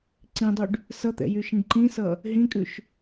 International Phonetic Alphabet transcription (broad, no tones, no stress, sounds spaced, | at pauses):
ǀ ĩ dˤ y ɖ | s ʌ t̪ ɛ̰ j y ʃ ĩ ɖ ǃ ĩ s ʌ | ɦ ĩ kʼ ʉ ʃ